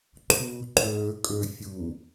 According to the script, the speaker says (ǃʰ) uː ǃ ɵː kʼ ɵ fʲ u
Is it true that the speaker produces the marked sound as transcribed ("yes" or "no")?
yes